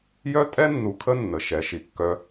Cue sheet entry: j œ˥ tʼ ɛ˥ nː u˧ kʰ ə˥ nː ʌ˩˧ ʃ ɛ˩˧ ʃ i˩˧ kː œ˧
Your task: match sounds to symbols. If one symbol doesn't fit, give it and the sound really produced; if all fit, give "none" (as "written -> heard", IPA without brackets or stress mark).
ʌ˩˧ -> ə˩˧